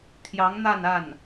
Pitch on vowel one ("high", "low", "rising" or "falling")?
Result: rising